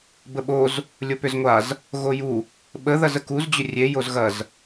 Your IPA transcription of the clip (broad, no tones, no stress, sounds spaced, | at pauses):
b ə ɓ o z | lʲ o p ʏ z ŋʷ a z | ɣ o j u | ɓ ə ð ɐ z ə k u z d͡ʑ ʏ rʲ e j o z ɣ ɐ z